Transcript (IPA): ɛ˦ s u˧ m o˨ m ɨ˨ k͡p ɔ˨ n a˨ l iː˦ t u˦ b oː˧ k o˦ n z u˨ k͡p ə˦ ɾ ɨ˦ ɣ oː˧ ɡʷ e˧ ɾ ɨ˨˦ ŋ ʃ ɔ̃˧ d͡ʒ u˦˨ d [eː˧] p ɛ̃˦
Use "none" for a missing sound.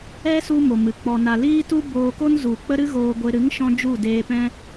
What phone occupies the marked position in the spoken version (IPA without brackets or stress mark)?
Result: eː˧